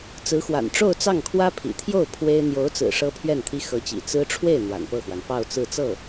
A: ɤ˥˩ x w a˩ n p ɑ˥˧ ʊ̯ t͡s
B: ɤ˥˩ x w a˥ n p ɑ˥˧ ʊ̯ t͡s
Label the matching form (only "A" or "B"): A